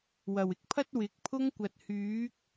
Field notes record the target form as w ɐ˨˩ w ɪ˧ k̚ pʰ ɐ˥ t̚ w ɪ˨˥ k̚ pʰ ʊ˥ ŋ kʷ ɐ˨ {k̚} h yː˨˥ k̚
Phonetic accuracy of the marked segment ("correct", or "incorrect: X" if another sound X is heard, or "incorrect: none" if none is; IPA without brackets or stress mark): incorrect: t̚